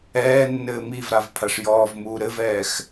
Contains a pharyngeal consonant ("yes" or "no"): no